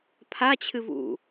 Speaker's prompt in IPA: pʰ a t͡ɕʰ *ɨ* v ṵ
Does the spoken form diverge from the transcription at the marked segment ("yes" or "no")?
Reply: no